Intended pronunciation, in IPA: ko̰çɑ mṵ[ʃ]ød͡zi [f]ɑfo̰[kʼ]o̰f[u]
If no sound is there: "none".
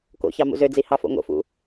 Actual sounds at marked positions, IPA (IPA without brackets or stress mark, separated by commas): z, h, ŋ, ṵ